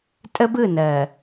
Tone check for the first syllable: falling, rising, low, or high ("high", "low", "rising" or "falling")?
high